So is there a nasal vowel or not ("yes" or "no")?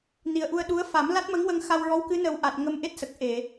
no